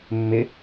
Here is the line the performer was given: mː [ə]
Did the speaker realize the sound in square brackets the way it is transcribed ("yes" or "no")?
no